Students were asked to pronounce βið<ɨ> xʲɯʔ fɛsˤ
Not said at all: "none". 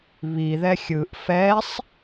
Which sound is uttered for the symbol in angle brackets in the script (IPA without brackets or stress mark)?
ɛ